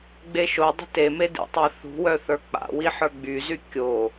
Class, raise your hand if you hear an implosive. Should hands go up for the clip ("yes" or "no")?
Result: no